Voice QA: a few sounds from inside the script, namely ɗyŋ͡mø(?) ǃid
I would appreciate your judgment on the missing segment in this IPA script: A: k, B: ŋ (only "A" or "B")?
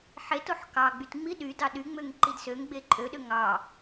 B